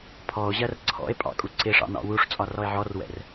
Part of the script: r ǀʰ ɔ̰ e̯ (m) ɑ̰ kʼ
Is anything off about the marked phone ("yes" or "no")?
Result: yes